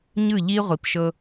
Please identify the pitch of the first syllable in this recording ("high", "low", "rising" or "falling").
falling